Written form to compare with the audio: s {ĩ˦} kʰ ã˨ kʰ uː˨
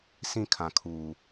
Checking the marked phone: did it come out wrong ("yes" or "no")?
no